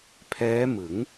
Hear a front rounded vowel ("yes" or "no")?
no